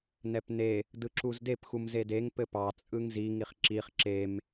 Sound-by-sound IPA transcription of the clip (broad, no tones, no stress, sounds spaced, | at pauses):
n ɛ p n e | d ɯ ǁ u z d e p x u m z e d e ŋ p ɘ p ɑ t͡sʼ ɯ ŋ z i ŋ i χ ǁ i χ ǁ e m